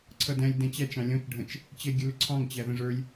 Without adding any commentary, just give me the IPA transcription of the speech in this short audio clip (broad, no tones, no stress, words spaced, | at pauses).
ǀʰʌdæ̃lʲ dɛ̃t͡ɕæt͡ʃ ɑ̃lʲɔ̃t͡ʃ ɖʱə̃t͡ʃ | t͡ɕɛɡʲəlʊǀʰɑ̃ŋ t͡ɕæðə̃ʐə˞lʲ